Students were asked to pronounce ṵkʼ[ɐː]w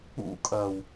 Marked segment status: correct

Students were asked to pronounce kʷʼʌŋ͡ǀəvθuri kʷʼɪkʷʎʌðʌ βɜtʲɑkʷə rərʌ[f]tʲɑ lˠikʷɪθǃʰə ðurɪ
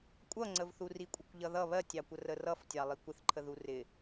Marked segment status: correct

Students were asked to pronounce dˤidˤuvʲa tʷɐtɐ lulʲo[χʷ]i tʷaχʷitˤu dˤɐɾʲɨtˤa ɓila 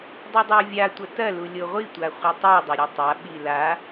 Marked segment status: incorrect: ʁʷ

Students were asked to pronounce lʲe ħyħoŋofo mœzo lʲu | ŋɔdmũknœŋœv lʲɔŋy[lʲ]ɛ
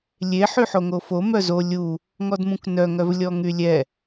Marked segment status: correct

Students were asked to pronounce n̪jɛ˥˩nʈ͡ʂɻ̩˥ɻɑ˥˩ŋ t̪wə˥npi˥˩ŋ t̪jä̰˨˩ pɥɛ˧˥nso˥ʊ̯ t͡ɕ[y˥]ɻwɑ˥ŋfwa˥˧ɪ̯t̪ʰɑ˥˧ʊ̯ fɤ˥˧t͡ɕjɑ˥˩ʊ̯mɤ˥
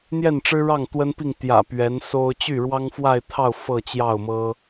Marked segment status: incorrect: y˥˩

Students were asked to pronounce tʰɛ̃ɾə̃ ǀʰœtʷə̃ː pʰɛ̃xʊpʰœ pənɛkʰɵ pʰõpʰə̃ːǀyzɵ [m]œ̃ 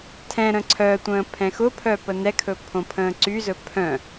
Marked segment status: incorrect: pʰ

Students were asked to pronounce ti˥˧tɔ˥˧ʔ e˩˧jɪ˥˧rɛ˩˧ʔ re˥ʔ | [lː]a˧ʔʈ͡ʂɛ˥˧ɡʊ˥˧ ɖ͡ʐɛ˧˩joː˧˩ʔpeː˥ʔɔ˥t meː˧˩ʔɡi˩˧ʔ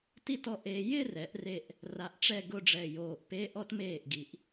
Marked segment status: incorrect: r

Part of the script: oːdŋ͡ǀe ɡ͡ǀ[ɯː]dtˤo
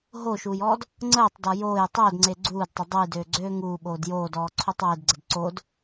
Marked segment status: incorrect: uː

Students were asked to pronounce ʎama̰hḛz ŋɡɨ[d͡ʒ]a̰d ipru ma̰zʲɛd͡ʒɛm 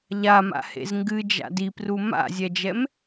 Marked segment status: correct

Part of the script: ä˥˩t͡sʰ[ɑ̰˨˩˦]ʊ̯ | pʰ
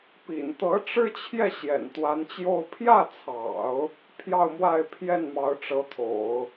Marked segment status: correct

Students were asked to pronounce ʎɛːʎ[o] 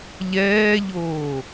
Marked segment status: incorrect: oː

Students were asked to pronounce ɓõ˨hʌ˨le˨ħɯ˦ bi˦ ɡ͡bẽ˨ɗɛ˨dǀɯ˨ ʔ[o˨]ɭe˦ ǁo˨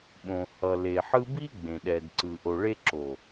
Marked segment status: correct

